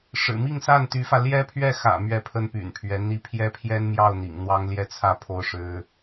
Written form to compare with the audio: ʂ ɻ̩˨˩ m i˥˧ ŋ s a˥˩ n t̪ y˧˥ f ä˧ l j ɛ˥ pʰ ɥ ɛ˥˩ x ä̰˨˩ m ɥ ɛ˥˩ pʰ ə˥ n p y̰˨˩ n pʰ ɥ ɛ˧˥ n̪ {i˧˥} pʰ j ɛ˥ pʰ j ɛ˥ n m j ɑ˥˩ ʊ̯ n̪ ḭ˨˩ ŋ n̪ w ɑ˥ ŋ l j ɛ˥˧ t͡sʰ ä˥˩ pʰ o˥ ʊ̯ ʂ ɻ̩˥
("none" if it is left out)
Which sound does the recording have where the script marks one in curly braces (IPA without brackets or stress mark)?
i˧˥